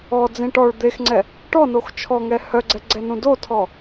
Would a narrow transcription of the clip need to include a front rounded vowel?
yes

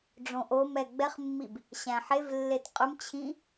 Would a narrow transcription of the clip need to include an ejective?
yes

